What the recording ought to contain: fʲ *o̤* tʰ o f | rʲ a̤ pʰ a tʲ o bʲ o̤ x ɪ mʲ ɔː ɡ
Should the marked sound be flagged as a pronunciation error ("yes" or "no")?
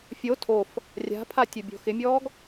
yes